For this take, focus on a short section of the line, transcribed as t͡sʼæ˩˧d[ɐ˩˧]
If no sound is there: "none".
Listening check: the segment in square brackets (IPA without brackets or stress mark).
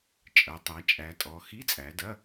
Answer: ɐ˧˥˧